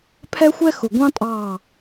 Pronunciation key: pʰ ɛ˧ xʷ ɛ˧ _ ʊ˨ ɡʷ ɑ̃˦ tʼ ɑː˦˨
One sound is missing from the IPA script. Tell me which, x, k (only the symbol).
x